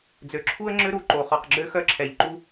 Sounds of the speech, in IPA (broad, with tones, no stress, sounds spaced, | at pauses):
d͡z ø˨ ǁʰ u˦ ə̯ ŋ͡ǁ ø˦ ɾ u˨ ǃ o˨ χ ɔ˨ q ɡ͡ǁ ø˦ x œ˦ ǁʰ ɛ˨ ʎ ǃ u˦